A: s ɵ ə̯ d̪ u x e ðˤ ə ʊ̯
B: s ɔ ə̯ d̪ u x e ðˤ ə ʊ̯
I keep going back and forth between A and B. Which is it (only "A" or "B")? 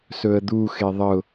A